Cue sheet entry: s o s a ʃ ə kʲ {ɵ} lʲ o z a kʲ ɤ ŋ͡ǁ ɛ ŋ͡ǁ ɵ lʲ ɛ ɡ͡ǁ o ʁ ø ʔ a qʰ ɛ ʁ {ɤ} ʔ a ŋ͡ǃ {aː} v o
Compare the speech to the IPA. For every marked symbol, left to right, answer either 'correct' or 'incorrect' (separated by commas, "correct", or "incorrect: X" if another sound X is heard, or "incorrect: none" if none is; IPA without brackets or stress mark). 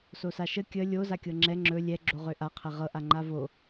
incorrect: ə, correct, incorrect: a